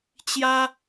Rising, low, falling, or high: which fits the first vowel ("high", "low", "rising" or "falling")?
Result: high